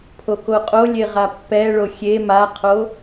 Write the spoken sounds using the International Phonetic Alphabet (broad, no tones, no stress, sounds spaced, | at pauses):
pʰ o k o qʼ o lʲ e ʁ a pː ɛ ɭ o xʲ e m a qʰ o